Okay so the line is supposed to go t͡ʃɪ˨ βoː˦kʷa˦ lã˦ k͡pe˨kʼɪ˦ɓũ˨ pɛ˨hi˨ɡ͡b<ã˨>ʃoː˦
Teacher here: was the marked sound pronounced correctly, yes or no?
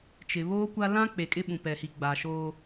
no